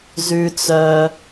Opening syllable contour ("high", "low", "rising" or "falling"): low